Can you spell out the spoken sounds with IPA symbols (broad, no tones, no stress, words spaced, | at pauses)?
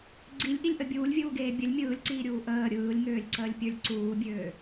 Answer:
ɡ͡ǀilʲʔilʲʔə bʲuːlʲvʲuːɡeː bʲəlʲ mʲɯːlʲǀiːɾʲuː ʔəː ɾʲɯːlʲŋøːlʲǀəːlʲpʲə˞lʲ ǀuːbʲøː